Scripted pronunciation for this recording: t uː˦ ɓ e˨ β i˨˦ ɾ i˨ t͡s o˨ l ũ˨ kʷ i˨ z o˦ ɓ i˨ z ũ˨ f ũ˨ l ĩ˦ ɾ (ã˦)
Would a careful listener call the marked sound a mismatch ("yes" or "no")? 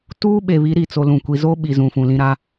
yes